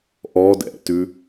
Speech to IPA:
ʔɔdɛ̰tʉ

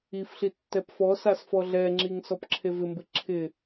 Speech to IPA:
ifɬi tːɛpfɔsas fɔɮɛŋ͡ǁiŋ sɔpǁʰevɪmbɪ ǁʰɪ

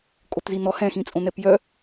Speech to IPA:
kʼotzinɔ hɛ̃xĩt͡sʼõnɛp jœ

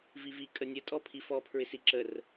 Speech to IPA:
vivi kʼənʲə tʼɔpʰifɔ pʰɹɪsiǁər

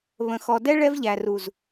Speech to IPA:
βə̃˨xɔ˨dɛ˦ ɭɛ˦vʎæ˨ru˨z

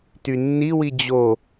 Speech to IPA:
tynːiwi d͡ʑo

